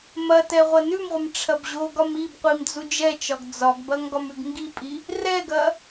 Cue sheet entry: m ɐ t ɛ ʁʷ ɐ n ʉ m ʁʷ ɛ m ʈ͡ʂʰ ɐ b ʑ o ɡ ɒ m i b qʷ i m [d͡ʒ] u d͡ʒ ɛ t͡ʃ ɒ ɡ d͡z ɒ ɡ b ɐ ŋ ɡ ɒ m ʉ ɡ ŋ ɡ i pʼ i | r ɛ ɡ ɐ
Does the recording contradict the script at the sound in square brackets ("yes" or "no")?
yes